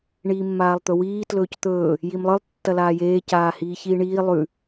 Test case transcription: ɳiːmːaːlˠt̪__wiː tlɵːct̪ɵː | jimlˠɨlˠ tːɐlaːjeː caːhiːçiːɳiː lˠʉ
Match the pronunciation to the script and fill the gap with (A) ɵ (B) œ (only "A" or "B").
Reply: A